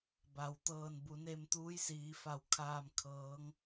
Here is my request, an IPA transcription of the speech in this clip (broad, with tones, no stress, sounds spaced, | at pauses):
b a˩ w t̪ ɤː˧˩ n b u˩˧ n e˧ m t̪ uː˧˥ j s iː˩˧ f a˧˩ w kʰ aː˧˩ m kʰ ɤː˩˧ ŋ